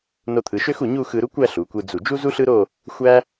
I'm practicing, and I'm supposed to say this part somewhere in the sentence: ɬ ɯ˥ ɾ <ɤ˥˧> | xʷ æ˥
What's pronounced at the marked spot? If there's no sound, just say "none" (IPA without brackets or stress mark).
o˥˧